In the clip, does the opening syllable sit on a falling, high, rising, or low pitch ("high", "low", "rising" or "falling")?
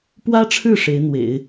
high